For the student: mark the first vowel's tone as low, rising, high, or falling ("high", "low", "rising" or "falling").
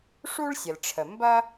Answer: high